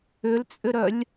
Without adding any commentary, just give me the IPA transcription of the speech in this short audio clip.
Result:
ʏ l t͡sʼ ʏ ɾ œ lʲ

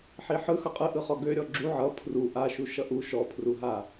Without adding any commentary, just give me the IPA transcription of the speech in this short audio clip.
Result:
ħ i ħ ɯ x ʌ qʼ ɯ ʔ ɯ χ ɔ ɡ ø ɾʲ ɔ ɡ͡ǁ u ʕ ʌ pʰ r u ʔ a ʃ u ʃ ʌ ʔ u ʃ ɔ pʰ r u ɦ a

